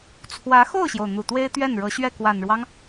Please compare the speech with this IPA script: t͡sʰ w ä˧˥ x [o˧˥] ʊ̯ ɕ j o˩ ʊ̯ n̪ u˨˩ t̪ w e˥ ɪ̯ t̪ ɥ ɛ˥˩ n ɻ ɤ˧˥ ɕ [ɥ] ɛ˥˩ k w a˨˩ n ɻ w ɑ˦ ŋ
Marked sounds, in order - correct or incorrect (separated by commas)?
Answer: incorrect, correct